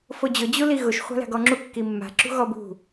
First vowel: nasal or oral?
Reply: oral